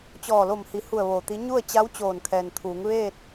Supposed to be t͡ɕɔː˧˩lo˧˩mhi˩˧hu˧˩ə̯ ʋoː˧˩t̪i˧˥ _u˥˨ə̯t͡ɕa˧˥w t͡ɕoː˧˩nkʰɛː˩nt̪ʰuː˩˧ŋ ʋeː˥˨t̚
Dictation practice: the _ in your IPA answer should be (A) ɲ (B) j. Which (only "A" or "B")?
A